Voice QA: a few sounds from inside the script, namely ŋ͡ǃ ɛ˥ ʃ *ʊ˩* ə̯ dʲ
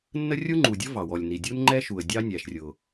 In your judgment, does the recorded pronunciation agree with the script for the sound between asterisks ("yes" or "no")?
no